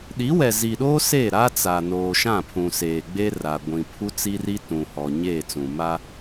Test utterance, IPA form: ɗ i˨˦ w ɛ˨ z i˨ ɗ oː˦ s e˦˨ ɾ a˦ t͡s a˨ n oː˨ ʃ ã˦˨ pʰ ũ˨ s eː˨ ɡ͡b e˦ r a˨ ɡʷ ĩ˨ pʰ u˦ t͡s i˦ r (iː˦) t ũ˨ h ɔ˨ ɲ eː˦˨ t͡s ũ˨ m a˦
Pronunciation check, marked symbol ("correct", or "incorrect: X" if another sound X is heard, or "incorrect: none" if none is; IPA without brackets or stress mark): incorrect: i˦